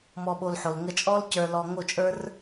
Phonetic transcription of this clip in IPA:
mɔ˧ɓo˧lħo˨l ŋə˧t͡ʃʼɔ˦lcə˞˧lɔ˧ ŋo˦˨t͡ʃʼə˞˦r

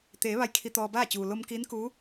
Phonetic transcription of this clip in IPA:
t̪eː˩˧ ʋa˧˥jkʰi˧t̪ɔː˧baː˥˨ t͡ɕuː˩lo˧mkiː˧˥nkuː˧˥

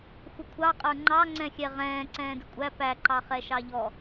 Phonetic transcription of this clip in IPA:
xʷəkʷʰɑqʼə˞ ŋ͡ǃɑ ŋ͡ǀɛ̃xʲɛ ʁɛ̃ː ǀɛ̃ːdɪkʷʼæ pæǃɑ χɛʃɑʎɔ

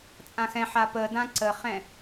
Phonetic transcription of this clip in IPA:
t͡sʼãxɛ̃ħa pədã ǀəχɛ̃

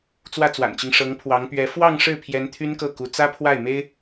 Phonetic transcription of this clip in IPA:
t͡swä˥˩t͡swa̰˨˩nt͡ɕi˦ŋ ʂɤ˧˥ŋpʰwɑ˧˥ŋpɥɛ˧˥ fwɑ˥˧ŋ ʂɻ̩˥˩pʰjɛ˧˥n t̪ʰy˥nkɤ˥˩ku˧˥ t͡sä˥pʰwa˥˩ɪ̯me˥ɪ̯

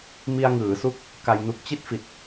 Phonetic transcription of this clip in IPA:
mi˧a̯ŋɯː˩˦su˦˥k̚ | ka˧jnu˦˥k̚ t͡ɕi˥˩t̚fi˨˩t̚

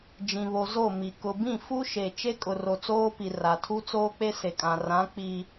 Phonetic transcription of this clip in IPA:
d͡ʒĩ˨βo˨ zo˦˨ mi˨ kʊ˨bĩ˦˨ fu˦ʃe˨ t͡ʃe˦kʼʊ˨ro˨ t͡soː˦pi˨ ra˨tʰu˦t͡soː˦k͡pe˦ se˨kʼã˨rã˨˦ k͡pi˦

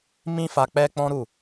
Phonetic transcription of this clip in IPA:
mĩ˦fa˧ k͡pɛ˦k͡pɔ̃˦ ɾu˦˨

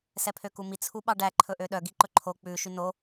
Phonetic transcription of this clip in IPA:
sɛpʰøkumi t͡sʰuɓɑɖæ ǃʰɵʔøɗœ ɡiǃɵǃʰo k͡pʉ ʃyno

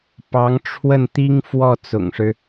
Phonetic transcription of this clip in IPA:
pɑ˧˥ŋ ʈ͡ʂʰwə˥˩n t̪i˥ŋfwɔ˥˩ t͡sʊ̰˨˩ŋʂɻ̩˦

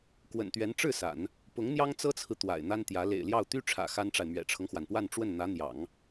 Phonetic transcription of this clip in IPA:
kwə̰˨˩nt̪ɥɛ˧˥n ʈ͡ʂɻ̩˥˩ sa̰˨˩˦n | pʊ˧˥ŋn̪jɑ˥ŋt͡sɤ˥t͡sʰɹ̩˨ t̪wa̰˨˩ɪ̯n̪a˥nt̪jä˧˥ lḛ˨˩ɪ̯ljɑ˥˩ʊ̯ t̪y˥ʈ͡ʂʰä̰˨˩ xa˥nʈ͡ʂa˨ɪ̯ mɥɛ̰˨˩ʈ͡ʂʰɤ˦ŋxwa˩npwa˥˧n ʈ͡ʂwə˥˩nn̪ä˧˥n̪jɑ̰˨˩˦ŋ

